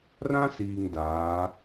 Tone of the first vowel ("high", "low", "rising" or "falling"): high